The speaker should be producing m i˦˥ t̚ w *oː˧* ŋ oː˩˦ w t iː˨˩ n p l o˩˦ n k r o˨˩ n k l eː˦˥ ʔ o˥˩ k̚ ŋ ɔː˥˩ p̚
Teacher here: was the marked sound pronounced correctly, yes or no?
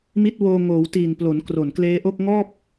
yes